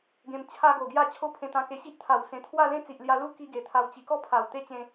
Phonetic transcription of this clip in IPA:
ɡẽ˧mt͡ɕʰa˦ɡo˨˩ɡja˥˧ t͡ɕʰo˦pʰẽ˧t̪ã˧ke˧ ɕi˦ʔt̪ʰa˨˩w sẽ˨˩t̪ʰwa˥˧lẽ˦ t͡si˨ʔlja˧ lu˦ki˧ ɡe˨˩t̪ʰa˧w t͡ɕi˨˩kɔ˥˧ pʰa˨˩w t̪e˦t͡ɕẽ˧

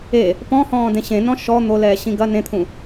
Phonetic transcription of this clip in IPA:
e | pɔ̃hɔ̃ːdẽ ɕẽnɔ̃ ʃɔ n̪olɛːɕĩ ɡɐ nẽt̪ʰũ

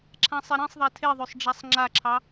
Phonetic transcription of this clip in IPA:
ǁʰãsˤeɾẽsˤðˤa tʰeðˤøsˤ ɖ͡ʐasˤŋ͡ǁaǁʰɑ

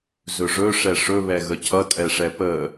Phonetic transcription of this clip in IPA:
zɵʐɵ ʂɛʂɵ βɛɣəcʰʌ tʼɛʂɛpə

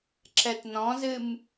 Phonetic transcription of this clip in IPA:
ǁɛtnɔ̃zɨm

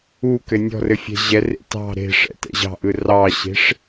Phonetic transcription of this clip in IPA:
u kɘnʲɔ̤rɘ fʲɛ̤ʑɛrḛ tɑ̤ ɾe̤ʂɛ̰ tɛ̰ʑɑ̤ʔɯ rɑɕe̤ʂ

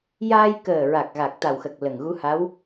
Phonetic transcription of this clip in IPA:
jaː˧jkəː˨˩ɹa˨˩k̚ ɣa˨˩k̚ t̪a˨˩wxə˨˩k̚ lə˨˩ŋ ɣu˧˥ha˧˥w

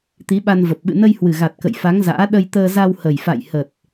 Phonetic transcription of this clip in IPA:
t̪i˨˦ɓa˧nvə˨˩p̚ ɓɨ̰˧˨nə˧jhwɨ˨˩ ɣa˨˩t̚kə̰˧˨jfa˨˦ŋ za̰ː˧˥ ɗə˧jt̪əː˧ za˧whə˨˩j fa̰˧˨j hə˨˩t̚

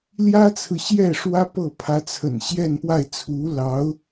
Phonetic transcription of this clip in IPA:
ljä˥t͡sʰɹ̩˨ɕjɛ˥˩ʂwä˥ pɤ˥˩pʰä˧˥t͡sʰə̰˨˩n ɕjɛ˥˧npwa˥˩ɪ̯ t͡sʰu˧˥lɑ˧˥ʊ̯

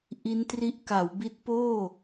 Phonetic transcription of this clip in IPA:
ʔi˦˥ntri˦˥ʔ ka˩˦wbi˦˥t̚poː˥˩

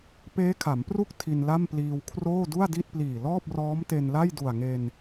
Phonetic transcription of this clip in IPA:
peː˦˥kʰa˩˦mpru˥˩k̚ tʰi˧nla˥˩mpliː˧w kʰroː˥˩du˥˩a̯di˥˩t̚pliː˨˩ lɔː˥˩p̚rɔː˦˥mte˧n la˥˩jdu˨˩a̯ŋe˧n

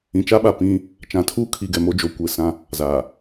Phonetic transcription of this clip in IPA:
ĩ˨t͡ʃa˦ɓa˨ pĩ˦ | t͡ʃã˨tʰuː˦ kʰi˨ɡɛ˨ mo˦d͡ʒo˨˦kʷe˨sã˦ | za˨

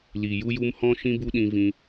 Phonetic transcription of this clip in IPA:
li˨ju˦ju˦m hɔ̃˦ʃĩ˦ bu˦ɗĩ˧vĩ˧

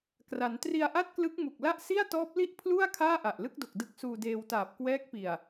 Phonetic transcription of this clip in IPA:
kra˩˦n tri˧a̯ ʔa˥˩t̚klɯ˦˥k̚mu˨˩k̚la˥˩ʔ si˥˩a̯tɔː˦˥p̚li˥˩ʔ pʰlu˥˩a̯ kʰaː˥˩ ʔa˨˩ʔlɯ˥˩k̚do˨˩k̚ dɯ˦˥k̚suː˧deː˧wtaː˨˩p̚ kwɛː˦˥k̚pi˨˩a̯

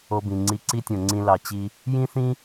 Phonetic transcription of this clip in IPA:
o˧bĩ˨ŋ͡ǀi˧ ǀi˦tʲõ˨ŋ͡ǀĩ˧ lɑ˨t͡ɕi˧ | jĩ˦ θĩ˦

